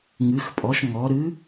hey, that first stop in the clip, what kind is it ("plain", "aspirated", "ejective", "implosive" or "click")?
ejective